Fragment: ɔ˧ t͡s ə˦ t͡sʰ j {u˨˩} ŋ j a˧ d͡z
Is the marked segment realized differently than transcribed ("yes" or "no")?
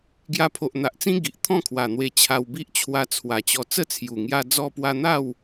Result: no